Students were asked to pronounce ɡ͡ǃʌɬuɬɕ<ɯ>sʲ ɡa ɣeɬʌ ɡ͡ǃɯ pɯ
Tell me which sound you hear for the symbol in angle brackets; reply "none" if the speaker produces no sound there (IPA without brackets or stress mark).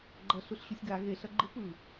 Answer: u